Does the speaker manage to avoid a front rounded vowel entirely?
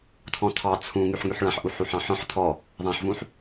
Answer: no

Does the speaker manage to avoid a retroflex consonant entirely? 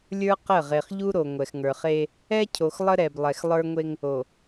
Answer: yes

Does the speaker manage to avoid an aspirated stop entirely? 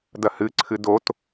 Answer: no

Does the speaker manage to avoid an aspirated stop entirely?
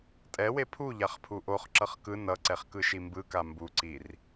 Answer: no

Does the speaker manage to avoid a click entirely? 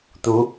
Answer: yes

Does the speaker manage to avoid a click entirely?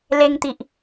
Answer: yes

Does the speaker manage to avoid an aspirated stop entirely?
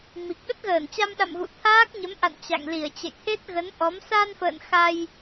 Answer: no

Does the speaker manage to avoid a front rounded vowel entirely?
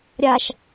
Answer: yes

